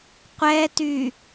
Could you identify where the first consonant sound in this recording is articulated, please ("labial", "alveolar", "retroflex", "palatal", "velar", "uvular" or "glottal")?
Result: uvular